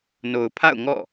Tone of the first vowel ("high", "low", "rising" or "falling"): low